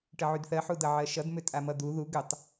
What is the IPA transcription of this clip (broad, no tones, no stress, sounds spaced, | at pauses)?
ʈ ə ʕ y d θ ɜ ħ u d ʌ ʕ ɜ ʃ ʌ d m ʏ tʼ a m ʌ d̪ u ð u ɡ ʏ tˤ